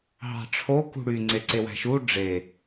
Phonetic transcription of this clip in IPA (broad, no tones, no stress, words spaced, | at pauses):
ɦɑ̤ʈ͡ʂʰo kṳɽy ŋ͡ǀeǀewæ̤ʃu ɖ͡ʐe